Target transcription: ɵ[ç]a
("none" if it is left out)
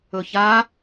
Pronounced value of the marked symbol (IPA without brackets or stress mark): ç